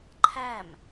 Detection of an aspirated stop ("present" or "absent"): present